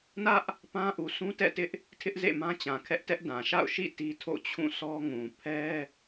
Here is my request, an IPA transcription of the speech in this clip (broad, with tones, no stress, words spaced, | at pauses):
nä˦ʔ | pã˦ʔu˨ sʰũ˦tɛ̰˦˨tɪ˦ʔ | tʰɪ˦ʔzḛ˦˨ mã˦t͡ɕã˨ kʰɛ˦ʔtɛ˦ʔdã˨ ʃa̰˦˨ʊ̯ʃḭ˦˨ ti˦tʰo̰˦˨ t͡ɕʰũ˦˨sɔ˦ŋũ˨ pʰɛ˦